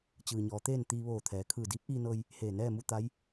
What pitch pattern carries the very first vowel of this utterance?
low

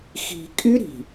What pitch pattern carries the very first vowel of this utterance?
low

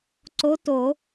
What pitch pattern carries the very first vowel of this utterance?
rising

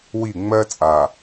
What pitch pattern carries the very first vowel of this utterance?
falling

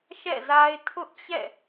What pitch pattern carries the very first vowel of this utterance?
falling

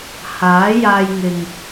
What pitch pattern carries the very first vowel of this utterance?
rising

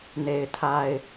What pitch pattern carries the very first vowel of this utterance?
low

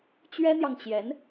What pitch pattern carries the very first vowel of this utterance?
high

